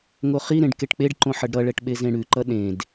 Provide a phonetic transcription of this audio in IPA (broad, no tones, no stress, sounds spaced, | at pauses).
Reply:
ŋ o χ i ɾ ẽ ɖ k e ʈ k͡p e ɖ ǃ õ ħ ʌ ɖ ɾ ʌ ɭ ɛ ʈ ɓ e z ẽ ɽ ʉ ǃ ʌ ɗ ẽ d